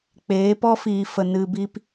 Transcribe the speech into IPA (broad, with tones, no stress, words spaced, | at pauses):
k͡peː˨˦pɔ˦fiː˨fə˨ nɨ˨bi˧p